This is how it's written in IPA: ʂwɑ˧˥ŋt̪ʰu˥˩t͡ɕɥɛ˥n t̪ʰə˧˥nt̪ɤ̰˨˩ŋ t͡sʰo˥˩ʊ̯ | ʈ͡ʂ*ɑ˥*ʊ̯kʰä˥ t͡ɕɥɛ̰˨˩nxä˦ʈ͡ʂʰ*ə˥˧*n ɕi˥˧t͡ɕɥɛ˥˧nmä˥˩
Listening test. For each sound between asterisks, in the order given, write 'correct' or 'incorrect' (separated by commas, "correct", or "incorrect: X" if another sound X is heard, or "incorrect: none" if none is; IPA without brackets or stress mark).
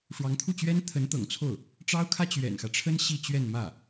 correct, incorrect: ə˥